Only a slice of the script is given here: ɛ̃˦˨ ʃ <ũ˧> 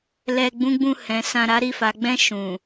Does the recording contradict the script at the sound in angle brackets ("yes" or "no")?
yes